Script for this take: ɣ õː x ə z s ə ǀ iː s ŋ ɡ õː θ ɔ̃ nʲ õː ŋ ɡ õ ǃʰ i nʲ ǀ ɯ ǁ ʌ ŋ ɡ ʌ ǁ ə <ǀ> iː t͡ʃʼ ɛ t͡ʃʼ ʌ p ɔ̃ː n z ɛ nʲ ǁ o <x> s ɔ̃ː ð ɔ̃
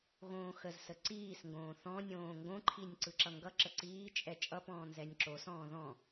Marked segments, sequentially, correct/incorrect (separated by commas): correct, incorrect